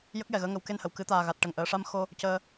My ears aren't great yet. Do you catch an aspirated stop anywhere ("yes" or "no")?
no